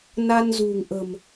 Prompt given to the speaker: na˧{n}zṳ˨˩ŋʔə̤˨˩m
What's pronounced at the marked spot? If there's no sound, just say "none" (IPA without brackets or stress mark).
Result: n